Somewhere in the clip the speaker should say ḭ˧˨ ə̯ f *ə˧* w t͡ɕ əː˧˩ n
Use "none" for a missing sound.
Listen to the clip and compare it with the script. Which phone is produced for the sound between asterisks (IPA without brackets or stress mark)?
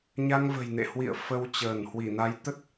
ə˧